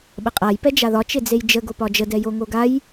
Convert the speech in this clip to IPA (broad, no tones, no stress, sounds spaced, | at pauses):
ɓ ə qʼ a j p ɛ d͡ʒ a ð ɒ t͡ʃ e d͡z e j d͡ʒ ə ɡ o p ɒ d͡ʒ ə d ɛ j o ŋ o ɡ a j